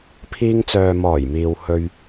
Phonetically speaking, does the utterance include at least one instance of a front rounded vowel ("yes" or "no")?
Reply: yes